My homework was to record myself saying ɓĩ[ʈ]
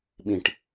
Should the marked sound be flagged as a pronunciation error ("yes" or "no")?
no